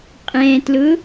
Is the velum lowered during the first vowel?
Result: yes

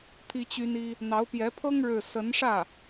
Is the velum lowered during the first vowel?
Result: no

